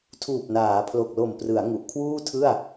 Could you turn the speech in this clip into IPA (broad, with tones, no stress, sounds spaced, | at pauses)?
tʰ uː˨˩ p̚ n aː˩˦ pʰ l o˨˩ k̚ l o˨˩ m p r ɯ˩˦ a̯ ŋ u˨˩ ʔ kʰ w uː˥˩ tʰ ɯ˥˩ a̯